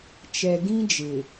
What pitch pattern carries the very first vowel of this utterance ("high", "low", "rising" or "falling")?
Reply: low